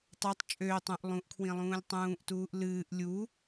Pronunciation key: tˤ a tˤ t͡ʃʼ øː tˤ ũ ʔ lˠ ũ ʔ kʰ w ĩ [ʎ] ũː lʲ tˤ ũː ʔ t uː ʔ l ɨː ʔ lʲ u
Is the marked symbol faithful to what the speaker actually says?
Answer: no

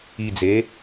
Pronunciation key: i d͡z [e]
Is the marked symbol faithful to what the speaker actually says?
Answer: yes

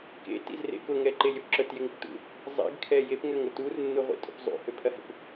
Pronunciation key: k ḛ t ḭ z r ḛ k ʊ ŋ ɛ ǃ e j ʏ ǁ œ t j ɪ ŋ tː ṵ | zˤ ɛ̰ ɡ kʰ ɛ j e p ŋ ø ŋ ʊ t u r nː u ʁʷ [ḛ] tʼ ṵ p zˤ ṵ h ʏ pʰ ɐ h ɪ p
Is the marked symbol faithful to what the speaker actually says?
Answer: no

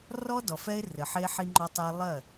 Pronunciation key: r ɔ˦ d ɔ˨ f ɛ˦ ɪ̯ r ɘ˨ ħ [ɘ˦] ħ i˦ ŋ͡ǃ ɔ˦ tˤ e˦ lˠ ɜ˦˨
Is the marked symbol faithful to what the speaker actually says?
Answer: no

